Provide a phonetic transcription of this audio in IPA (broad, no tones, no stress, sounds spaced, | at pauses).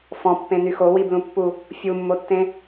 f ɔ̃ pː ẽ n y x o w i b l ũ pː u | fʲ u mː o tː ẽ